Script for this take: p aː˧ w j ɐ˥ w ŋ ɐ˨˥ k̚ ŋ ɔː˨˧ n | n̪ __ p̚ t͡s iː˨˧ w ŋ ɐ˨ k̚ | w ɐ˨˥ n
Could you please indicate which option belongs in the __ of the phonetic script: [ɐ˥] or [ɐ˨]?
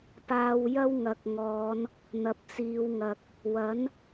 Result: ɐ˨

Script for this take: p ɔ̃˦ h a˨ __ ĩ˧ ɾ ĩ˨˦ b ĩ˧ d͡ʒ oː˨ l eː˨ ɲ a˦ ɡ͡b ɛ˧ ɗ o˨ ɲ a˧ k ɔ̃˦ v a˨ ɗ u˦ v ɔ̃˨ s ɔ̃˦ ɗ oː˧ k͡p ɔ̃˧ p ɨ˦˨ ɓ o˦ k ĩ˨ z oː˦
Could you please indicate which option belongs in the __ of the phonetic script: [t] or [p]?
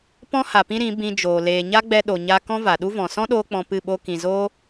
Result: p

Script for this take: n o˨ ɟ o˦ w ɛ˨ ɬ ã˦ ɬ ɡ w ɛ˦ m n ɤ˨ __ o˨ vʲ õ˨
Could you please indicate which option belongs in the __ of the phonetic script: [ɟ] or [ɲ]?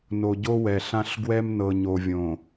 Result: ɲ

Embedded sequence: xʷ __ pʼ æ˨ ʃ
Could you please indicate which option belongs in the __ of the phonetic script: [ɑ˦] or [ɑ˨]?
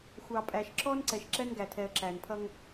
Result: ɑ˨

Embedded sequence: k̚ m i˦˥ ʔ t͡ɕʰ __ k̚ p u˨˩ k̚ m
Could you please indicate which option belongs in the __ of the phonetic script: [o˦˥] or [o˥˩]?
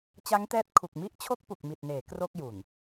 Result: o˦˥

